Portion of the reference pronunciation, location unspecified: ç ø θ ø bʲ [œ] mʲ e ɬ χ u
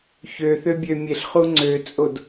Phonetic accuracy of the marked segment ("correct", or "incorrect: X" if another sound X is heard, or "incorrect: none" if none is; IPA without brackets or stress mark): incorrect: ø